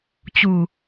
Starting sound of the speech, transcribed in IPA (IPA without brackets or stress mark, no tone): t͡ɕ